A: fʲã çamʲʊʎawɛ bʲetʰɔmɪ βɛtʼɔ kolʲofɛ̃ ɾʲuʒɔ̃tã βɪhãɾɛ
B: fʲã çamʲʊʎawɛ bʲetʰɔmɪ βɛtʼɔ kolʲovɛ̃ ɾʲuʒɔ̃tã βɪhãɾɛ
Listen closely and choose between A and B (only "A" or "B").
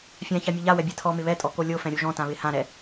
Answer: A